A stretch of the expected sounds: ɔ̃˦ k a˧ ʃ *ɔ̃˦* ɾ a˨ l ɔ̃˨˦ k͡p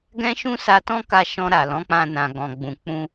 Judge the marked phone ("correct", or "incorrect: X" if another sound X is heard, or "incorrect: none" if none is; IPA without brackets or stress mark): incorrect: ɔ̃˧